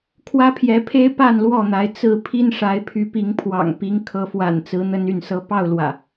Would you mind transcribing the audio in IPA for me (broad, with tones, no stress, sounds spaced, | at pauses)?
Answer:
kʰ w ä˦ pʰ j ɛ˨˦ pʰ e˦ ɪ̯ p a˥˨ n l w ɔ˥˨ n̪ a˨˦ ɪ̯ t͡s ɹ̩˥˨ pʰ i˦ n ʂ a˨˦ ɪ̯ pʰ y˨˦ p i˨˦ ŋ pʰ w ɑ̰˨˩ ŋ p i˨˦ ŋ kʰ ɤ˨˦ f w a̰˨˩ n t͡s ɹ̩˨˦ n̪ ə˦ n y˥˨ n s ɤ˦ p ɑ˥˨ ʊ̯ l w ä̰˨˩